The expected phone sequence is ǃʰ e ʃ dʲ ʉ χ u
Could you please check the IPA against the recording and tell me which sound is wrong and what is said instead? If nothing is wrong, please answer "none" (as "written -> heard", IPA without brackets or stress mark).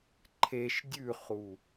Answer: none